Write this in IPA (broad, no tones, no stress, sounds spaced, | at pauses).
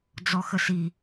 d͡z ɔ x ə s i